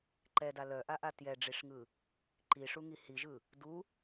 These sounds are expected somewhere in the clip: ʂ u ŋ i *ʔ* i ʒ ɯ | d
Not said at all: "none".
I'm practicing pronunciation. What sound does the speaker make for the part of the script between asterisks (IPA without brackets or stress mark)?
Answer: h